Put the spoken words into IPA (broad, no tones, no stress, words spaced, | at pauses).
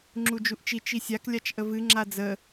ŋ͡ǁud͡ʒuʔt͡ʃi t͡ʃisʲak lʲat͡ʃʔəvɨ ŋ͡ǁad͡zə